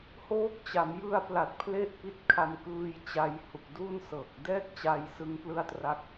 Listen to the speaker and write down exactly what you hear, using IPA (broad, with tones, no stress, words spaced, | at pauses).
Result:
hoː˦˥k̚ t͡ɕa˩˦m jɯ˧a̯pla˨˩t̚ pʰle˥˩ʔpi˦˥t̚kʰa˧m kɯː˧jt͡ɕa˧j hu˨˩k̚du˥˩nsɤː˨˩k̚ dɛː˥˩k̚t͡ɕa˧jsɯ˧ŋplɯ˦˥a̯ tra˦˥k̚